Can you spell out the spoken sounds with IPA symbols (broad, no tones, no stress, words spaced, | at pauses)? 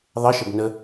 ðˤɪʃəb nə